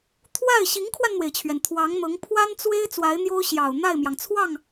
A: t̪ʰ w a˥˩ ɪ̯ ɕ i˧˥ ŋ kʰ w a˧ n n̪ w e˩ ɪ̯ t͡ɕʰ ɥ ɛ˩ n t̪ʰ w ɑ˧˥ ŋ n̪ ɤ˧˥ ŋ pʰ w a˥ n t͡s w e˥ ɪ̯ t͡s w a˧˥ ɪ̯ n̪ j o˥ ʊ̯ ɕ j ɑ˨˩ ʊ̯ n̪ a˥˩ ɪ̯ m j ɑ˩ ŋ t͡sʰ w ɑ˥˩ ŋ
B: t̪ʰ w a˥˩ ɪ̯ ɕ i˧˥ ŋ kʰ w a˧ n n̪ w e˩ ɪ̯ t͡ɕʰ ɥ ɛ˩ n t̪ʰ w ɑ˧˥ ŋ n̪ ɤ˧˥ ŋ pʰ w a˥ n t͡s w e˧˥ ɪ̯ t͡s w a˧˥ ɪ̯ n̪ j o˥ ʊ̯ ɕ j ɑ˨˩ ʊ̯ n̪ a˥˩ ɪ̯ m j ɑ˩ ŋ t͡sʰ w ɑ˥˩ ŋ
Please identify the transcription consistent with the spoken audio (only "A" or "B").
A